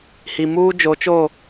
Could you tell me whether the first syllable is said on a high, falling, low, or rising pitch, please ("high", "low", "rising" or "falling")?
low